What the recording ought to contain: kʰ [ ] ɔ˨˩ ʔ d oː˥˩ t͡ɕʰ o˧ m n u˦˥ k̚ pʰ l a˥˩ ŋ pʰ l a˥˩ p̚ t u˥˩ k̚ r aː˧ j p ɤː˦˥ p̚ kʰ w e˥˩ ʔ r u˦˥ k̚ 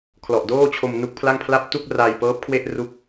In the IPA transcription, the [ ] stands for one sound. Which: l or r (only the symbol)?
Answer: l